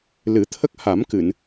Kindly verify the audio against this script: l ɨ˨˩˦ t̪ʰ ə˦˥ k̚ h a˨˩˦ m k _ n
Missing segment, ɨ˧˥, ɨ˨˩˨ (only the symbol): ɨ˨˩˨